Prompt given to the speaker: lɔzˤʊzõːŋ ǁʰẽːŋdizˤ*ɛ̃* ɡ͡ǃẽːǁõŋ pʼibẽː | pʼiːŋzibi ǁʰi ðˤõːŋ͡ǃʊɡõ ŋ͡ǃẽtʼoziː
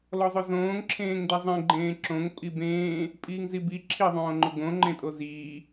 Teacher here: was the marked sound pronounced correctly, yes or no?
no